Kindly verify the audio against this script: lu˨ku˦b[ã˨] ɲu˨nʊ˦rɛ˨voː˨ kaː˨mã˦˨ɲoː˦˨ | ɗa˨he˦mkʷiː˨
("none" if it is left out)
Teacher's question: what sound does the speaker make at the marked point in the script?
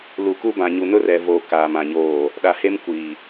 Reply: ã˨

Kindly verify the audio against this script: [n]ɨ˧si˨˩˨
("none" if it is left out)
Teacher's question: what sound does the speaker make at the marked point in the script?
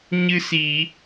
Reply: ɲ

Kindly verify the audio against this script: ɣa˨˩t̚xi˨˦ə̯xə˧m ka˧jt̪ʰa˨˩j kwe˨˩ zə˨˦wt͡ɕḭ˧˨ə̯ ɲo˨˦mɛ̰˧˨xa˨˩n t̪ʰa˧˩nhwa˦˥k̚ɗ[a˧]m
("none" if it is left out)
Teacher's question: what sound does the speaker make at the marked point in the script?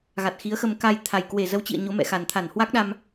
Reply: a˧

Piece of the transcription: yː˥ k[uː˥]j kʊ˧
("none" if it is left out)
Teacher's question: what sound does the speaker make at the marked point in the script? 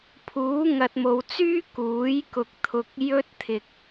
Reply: uː˨˥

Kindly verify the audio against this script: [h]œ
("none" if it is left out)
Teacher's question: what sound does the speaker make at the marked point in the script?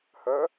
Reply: h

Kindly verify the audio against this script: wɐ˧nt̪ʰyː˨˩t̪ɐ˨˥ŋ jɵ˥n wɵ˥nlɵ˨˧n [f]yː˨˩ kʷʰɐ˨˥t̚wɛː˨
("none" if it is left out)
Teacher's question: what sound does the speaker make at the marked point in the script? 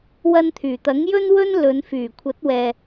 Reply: f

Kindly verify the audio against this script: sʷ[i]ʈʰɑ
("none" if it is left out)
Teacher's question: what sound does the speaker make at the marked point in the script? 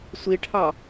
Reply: i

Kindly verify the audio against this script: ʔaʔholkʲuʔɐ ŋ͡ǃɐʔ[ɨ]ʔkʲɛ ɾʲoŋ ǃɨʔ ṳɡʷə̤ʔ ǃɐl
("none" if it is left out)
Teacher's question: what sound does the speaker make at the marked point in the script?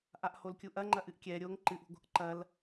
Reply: ɨ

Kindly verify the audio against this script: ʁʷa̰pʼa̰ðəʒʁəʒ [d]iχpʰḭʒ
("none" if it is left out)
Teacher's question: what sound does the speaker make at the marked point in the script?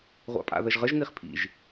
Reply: n̪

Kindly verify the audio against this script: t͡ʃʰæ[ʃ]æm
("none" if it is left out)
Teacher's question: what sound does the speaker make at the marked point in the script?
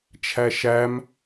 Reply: ʃ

